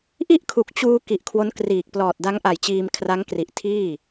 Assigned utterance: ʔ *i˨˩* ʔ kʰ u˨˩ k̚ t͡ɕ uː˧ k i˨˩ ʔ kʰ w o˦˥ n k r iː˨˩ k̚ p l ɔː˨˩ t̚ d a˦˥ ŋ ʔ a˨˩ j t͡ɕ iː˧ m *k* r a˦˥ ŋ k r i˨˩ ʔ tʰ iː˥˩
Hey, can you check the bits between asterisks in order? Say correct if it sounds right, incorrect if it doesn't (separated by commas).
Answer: incorrect, incorrect